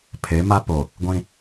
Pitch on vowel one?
rising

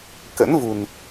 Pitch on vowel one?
rising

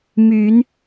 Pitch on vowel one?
rising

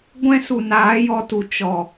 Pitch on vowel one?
high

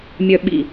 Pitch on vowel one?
low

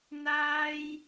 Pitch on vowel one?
high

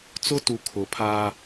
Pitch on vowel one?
high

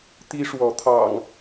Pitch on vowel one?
high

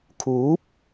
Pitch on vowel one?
rising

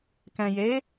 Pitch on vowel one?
low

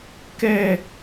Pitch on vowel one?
high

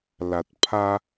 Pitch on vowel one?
low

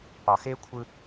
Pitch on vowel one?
low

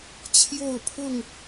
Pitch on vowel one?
falling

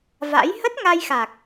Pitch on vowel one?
rising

